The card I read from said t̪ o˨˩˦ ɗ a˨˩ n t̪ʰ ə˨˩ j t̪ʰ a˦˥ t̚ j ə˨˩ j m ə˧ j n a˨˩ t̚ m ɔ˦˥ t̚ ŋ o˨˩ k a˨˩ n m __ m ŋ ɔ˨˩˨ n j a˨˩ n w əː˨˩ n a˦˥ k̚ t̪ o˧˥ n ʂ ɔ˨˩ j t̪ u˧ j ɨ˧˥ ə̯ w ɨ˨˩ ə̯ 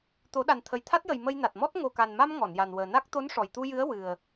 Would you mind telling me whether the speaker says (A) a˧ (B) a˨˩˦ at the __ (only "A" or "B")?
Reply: A